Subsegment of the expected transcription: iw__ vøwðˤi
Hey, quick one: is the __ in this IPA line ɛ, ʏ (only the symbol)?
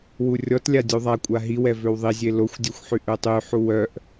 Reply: ɛ